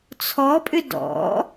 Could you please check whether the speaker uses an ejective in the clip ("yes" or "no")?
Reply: yes